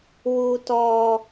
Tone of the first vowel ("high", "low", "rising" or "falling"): low